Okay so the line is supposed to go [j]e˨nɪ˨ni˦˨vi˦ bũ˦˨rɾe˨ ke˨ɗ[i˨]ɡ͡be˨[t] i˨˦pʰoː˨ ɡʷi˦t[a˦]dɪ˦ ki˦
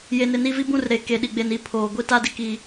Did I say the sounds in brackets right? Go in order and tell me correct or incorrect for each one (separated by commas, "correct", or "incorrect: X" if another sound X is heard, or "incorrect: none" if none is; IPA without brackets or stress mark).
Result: correct, correct, incorrect: n, correct